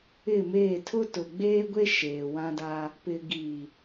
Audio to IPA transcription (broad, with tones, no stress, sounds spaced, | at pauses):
ɪ˦˨ m eː˦˨ tʰ ʊ˦ t ʊ˨ ɡ͡b eː˦ ɡʷ e˦ ʃ eː˨ w ã˦ d a˦ | p ɪ˨ ɡ iː˨